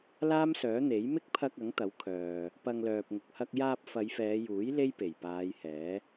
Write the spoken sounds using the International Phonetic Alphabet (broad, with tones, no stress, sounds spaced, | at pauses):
l aː˥ m s œː˨˥ n̪ e˨˥ j m ɪ˥ k̚ pʰ ɐ˧ k̚ ɐ˨˥ ŋ t̪ ɐ˨˥ w kʰ œː˨ | p ɐ˧ ŋ l œː˨ p̚ ŋ ʊ˨ k̚ h ɐ˧ k̚ j aː˧ p̚ f ɐ˨˧ j f ɛː˨˧ j uː˨˥ j l e˥ j p e˨˩ j p aː˨˧ j h ɛː˨˥